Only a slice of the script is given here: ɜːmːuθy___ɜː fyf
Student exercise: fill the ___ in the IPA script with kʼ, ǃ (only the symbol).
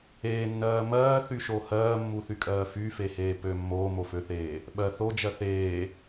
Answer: kʼ